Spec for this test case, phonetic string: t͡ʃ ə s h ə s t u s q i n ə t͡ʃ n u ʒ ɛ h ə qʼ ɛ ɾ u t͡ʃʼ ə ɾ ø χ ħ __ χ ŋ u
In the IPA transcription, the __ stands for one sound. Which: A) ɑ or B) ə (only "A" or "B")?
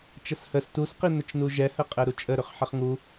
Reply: B